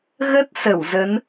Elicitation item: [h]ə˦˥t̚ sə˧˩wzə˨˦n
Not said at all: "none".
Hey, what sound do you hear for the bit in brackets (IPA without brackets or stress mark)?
ɣ